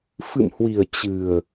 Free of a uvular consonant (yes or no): yes